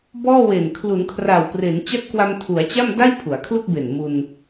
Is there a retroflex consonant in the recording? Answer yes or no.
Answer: no